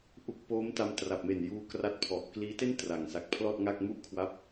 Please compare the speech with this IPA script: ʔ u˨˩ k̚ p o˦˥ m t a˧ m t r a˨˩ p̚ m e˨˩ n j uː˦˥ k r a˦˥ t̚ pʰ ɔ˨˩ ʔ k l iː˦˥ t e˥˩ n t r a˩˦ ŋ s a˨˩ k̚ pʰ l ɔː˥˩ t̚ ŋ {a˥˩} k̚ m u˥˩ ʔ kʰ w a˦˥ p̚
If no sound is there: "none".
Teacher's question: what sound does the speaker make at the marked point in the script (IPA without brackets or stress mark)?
a˥˩